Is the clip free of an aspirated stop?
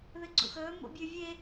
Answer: yes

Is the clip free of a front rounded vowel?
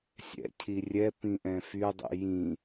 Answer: no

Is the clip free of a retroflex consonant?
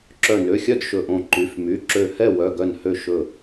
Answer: yes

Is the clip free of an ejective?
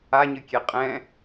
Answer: no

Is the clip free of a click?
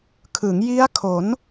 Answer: yes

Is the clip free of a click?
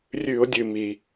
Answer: yes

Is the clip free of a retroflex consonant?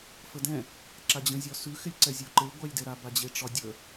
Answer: no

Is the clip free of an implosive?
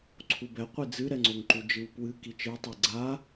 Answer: yes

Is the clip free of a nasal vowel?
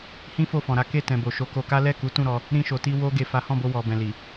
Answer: no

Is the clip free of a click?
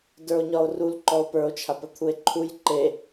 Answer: no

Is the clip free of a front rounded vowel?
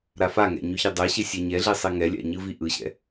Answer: no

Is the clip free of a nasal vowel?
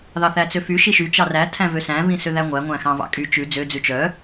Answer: no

